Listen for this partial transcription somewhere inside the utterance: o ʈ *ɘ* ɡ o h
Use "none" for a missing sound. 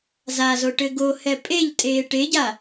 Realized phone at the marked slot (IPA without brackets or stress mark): ɘ